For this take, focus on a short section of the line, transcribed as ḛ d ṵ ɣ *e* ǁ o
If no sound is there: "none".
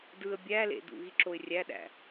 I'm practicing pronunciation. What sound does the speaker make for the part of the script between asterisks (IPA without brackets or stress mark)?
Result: i